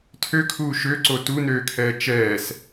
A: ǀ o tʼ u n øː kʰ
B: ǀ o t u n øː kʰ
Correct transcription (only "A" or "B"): B